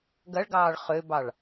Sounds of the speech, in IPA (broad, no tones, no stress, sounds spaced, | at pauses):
ɡ ɐ ɭ ɡ ɑː ɭ χ ø b ɑ ɭ